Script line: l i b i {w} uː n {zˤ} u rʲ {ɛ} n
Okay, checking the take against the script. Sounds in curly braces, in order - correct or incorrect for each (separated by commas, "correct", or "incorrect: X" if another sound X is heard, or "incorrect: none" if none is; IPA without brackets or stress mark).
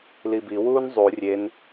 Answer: correct, correct, incorrect: e